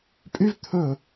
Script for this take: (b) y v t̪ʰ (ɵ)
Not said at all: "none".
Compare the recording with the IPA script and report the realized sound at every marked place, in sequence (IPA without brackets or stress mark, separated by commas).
pʼ, ɵ